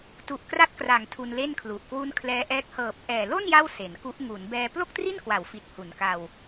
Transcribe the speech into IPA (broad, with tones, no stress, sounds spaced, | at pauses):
t u˨˩ ʔ k r a˦˥ t̚ k r a˩˦ ŋ tʰ u˧ n l e˥˩ n kʰ l u˨˩ ʔ k w u˦˥ n kʰ l ɛː˦˥ ʔ ɛː˦˥ k̚ h ɤː˨˩ p̚ ʔ ɛː˨˩ l o˥˩ n j a˥˩ w s e˩˦ n k u˦˥ ʔ ŋ u˩˦ n b ɛː˧ p l o˥˩ k̚ t r i˥˩ n k w a˩˦ w f i˨˩ t̚ h u˩˦ n k a˧ w